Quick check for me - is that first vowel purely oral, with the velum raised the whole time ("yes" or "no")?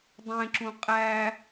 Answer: no